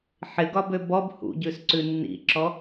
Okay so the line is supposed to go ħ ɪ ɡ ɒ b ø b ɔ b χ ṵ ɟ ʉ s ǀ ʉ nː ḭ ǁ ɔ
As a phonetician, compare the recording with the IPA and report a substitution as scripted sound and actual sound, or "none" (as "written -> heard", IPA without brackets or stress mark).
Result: χ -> h